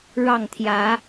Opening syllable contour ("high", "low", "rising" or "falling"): falling